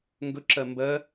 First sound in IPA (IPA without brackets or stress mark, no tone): ŋ